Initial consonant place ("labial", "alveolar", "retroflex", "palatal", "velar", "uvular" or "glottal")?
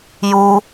palatal